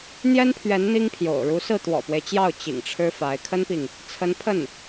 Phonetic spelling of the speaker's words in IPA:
n̪ j ɛ˥ n pʰ ɥ ɛ˧˥ n n̪ i˥ ŋ pʰ j o̰˨˩ ʊ̯ ɻ u˧˥ s ɹ̩˥˩ t̪ w ɔ̰˨˩ p w e˦ ɪ̯ t͡ɕ j ɑ˥˩ ʊ̯ t͡ɕ ḭ˨˩ ŋ ʈ͡ʂʰ ɻ̩˥ f a˧˥ ɪ̯ kʰ ə˥ n p i˨ ŋ | t͡sʰ ə˧˥ n pʰ ə˥˩ n

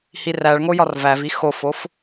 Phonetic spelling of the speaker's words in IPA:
h i r æ ɭ ŋ o j ɒ r v æ v i x o f o f

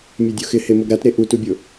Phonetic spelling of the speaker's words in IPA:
mʲ ɛ dʲ o x ɪ h e m o ɡ ɾ a t ɾ e ʔ u t u bʲ o

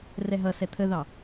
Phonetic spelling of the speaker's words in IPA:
r ɛ ɦ ʌ s ɛ t̪ʰ ə ð ɑ

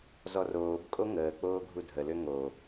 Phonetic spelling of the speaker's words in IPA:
z ɔ r oː b kʼ o ŋ əː k͡p oː ɡʱ u dʱ ə l ø ŋ o

